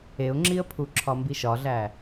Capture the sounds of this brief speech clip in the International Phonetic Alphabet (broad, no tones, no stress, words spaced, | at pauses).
eʊ̯ŋ͡ǁiə̯pʰu ǁʰɒmbiʃɒɮæ